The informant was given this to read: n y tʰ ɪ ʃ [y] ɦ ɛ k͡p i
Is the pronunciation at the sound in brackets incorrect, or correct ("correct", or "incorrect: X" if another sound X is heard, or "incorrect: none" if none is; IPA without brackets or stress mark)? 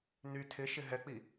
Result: incorrect: ɪ